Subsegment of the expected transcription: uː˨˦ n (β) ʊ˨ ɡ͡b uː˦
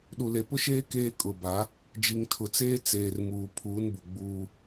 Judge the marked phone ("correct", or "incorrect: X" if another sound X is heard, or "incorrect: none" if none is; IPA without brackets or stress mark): incorrect: b